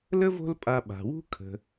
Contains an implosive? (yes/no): yes